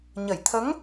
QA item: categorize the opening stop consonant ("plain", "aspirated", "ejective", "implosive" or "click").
aspirated